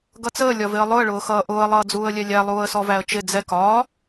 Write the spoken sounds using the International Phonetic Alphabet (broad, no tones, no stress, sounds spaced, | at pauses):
ɡ ʌ t͡s əː lʲ ɒ v ɪ ə̯ lˠ ʊ ə̯ ɭ ʊː x ʌː ʔ ʊː ə̯ lˠ ʌː d͡z uː ə̯ lʲ ɛ lʲ æ lˠ uː ə̯ s ɔ v æ ə̯ t͡ʃ ɪ d͡z ɛ k ɒː